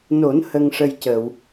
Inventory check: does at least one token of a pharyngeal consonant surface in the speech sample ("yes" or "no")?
no